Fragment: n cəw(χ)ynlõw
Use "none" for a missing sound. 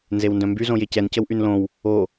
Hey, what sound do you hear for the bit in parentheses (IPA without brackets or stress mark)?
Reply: ʔ